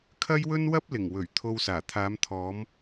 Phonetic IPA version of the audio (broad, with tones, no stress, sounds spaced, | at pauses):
kʰ ɐ˥ j w ɵ˥ n w ɐ˥ p̚ l ɪ˨˩ ŋ w ɵ˨˩ ɥ t̪ʰ o˧ w s aː˨˩ t̪ʰ aː˨˧ m t̪ʰ ɔː˨˧ m